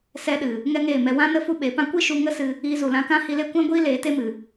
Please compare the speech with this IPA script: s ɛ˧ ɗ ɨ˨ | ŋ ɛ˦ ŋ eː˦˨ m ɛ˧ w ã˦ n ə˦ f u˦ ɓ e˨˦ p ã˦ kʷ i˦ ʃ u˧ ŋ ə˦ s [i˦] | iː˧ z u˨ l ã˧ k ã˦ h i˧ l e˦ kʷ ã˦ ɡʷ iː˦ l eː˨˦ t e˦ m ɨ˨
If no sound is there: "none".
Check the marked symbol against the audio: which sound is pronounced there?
ɨ˦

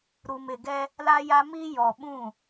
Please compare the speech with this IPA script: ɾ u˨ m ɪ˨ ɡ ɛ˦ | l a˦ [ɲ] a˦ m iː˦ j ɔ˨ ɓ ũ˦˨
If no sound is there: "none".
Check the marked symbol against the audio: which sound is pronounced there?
j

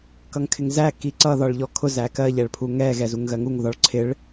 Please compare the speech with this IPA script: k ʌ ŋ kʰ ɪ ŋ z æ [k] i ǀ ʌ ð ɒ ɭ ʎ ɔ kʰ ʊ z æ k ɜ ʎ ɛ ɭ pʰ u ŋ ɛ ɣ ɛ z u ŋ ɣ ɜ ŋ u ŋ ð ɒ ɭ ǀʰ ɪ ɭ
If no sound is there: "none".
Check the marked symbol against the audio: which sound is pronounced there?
k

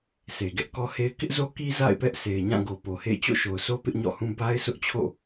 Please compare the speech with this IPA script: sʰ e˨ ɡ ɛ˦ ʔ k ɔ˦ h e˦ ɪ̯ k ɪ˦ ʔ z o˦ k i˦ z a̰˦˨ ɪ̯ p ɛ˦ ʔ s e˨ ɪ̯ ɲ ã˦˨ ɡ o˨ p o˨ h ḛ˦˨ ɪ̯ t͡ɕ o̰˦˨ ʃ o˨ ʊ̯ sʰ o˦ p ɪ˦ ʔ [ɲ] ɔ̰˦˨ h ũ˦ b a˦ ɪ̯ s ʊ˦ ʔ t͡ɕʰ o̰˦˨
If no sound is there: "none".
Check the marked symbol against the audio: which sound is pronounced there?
ɲ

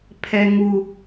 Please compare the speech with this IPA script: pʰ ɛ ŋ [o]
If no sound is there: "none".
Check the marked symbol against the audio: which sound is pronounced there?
u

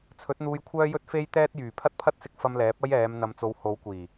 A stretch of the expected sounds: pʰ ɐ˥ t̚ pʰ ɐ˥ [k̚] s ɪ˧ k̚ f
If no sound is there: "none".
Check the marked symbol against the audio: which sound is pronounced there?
t̚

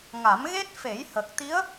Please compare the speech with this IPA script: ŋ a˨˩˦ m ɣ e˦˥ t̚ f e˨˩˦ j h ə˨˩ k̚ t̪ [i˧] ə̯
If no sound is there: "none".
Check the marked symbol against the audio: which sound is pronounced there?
i˧˥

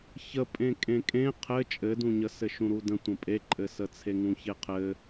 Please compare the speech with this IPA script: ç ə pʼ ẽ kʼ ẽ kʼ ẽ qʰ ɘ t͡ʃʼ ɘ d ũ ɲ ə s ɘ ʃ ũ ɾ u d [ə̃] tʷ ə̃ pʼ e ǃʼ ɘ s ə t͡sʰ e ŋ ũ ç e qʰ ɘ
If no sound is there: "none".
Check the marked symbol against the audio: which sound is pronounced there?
ə̃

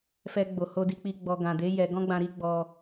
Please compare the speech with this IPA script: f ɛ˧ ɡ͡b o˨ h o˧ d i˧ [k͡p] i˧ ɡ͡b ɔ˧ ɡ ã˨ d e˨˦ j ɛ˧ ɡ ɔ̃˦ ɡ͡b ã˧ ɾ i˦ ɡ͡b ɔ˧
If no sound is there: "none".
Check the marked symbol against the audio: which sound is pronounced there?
k͡p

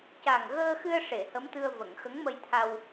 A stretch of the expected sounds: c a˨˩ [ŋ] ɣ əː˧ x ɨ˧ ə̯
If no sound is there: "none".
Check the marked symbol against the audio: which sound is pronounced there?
ŋ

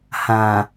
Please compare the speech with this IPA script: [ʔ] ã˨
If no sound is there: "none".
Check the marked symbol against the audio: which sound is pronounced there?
h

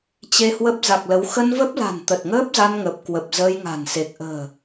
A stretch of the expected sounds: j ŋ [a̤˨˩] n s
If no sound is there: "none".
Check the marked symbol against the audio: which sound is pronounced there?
a̤˨˩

